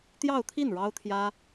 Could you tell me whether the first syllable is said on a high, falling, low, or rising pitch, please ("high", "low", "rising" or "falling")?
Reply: falling